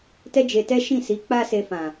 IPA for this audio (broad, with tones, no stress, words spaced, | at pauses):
tɛ˦d͡ʒe˧tɛ˦ ʃĩ˦˨si˨˦ k͡pa˦se˧fã˨